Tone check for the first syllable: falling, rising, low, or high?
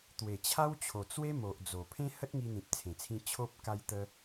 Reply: low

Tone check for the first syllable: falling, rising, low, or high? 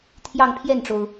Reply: falling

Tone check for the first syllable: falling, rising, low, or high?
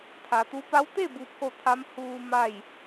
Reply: low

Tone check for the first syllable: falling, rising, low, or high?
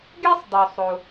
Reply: high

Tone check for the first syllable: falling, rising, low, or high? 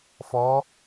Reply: rising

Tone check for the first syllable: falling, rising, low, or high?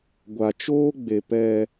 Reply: low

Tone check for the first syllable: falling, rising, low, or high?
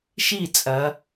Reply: falling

